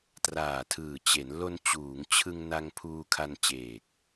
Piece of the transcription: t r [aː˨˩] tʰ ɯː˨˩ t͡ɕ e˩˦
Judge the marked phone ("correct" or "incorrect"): correct